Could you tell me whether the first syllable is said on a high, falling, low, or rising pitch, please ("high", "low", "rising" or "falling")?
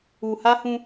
low